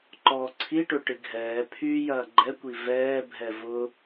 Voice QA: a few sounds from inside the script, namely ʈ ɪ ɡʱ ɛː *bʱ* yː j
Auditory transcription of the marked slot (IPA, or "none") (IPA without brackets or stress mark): pʰ